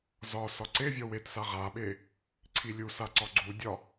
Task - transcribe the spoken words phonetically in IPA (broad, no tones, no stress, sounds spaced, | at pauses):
z ɒ s ɒ ǀ e vʲ ɔ w e t s a ʁ a ɓ e | ǀʰ i lʲ u s a ǀ ɒ ɡ͡ǀ u dʲ ɒ